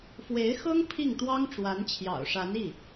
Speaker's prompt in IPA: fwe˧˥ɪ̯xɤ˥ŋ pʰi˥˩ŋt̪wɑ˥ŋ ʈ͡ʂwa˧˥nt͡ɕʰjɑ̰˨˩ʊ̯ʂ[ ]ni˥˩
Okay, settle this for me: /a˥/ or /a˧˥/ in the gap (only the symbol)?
a˧˥